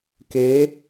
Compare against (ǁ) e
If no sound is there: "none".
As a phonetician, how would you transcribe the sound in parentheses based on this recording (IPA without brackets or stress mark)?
k